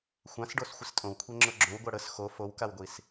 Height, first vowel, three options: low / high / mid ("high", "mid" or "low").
low